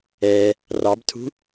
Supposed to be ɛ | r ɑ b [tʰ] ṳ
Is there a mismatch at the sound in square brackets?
no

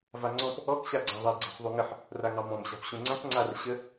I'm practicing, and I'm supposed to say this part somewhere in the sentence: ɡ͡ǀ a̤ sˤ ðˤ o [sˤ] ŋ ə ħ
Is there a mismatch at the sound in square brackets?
yes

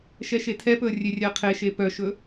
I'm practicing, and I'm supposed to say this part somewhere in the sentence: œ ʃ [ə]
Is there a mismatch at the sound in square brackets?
yes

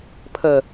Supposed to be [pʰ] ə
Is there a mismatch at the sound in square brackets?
no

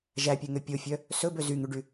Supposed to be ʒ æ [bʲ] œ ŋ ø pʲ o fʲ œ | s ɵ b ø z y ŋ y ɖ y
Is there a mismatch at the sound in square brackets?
yes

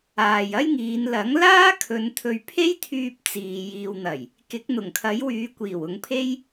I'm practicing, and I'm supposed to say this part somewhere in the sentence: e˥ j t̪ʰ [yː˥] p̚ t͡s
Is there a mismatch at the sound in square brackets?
yes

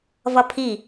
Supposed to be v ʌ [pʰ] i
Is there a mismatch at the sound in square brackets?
no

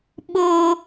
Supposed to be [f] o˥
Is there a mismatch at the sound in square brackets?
yes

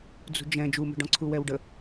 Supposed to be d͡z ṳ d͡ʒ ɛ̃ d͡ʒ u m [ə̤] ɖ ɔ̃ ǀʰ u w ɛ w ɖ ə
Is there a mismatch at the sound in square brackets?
no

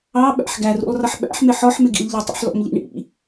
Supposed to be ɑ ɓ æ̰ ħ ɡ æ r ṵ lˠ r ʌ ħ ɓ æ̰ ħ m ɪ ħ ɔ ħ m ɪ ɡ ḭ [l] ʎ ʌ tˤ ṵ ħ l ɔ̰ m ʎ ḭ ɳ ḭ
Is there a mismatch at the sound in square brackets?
no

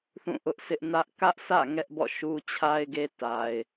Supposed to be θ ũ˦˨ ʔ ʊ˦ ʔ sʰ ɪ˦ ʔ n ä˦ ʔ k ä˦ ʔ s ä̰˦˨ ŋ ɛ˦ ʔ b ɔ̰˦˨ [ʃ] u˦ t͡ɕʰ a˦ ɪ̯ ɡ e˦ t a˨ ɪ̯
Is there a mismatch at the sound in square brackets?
no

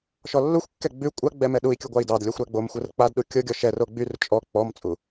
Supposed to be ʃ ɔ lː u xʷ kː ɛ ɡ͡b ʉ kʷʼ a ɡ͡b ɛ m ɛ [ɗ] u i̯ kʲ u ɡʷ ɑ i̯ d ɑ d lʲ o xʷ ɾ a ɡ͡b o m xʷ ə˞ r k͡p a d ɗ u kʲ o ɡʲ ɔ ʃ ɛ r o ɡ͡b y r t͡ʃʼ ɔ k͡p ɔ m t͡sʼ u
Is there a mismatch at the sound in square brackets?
no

